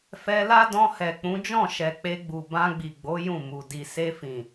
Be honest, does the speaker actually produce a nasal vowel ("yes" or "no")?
yes